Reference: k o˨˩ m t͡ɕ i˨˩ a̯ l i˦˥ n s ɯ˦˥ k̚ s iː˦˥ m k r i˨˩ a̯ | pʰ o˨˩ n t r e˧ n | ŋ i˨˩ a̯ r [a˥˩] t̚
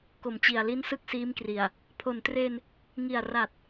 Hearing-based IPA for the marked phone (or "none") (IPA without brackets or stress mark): a˨˩